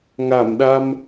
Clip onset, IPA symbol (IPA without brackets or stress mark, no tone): ŋ